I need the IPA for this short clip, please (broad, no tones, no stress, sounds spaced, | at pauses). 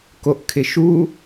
k o ʔ kʰ ɪ ʃ u